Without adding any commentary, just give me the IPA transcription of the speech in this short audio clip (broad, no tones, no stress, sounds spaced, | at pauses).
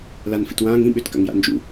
l a n f ḭ t w ãː ŋ ĩ ɓ ʏ t k a̰ ŋ j a̰ n d͡ʒ ṵ